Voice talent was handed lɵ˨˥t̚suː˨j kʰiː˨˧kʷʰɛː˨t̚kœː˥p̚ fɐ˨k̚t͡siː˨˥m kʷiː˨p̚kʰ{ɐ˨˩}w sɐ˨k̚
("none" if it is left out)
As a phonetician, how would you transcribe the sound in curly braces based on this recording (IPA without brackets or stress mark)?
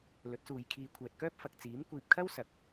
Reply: ɐ˥